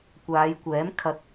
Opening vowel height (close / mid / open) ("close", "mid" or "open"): open